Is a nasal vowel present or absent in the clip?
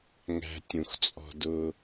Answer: present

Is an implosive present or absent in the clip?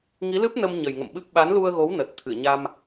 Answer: present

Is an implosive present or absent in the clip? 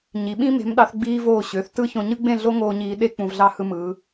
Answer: present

